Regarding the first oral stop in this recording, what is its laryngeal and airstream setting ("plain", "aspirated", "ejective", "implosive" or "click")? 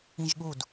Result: implosive